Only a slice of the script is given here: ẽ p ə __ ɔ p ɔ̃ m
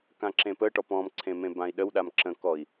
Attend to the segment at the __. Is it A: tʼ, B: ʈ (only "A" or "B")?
B